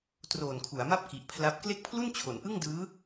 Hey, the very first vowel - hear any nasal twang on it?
no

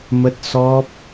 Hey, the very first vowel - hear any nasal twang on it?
no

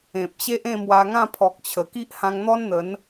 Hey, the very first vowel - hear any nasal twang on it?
yes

